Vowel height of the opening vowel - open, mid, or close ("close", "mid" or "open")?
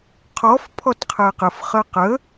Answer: mid